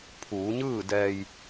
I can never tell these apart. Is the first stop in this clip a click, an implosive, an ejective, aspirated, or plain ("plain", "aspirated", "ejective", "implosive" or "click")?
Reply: aspirated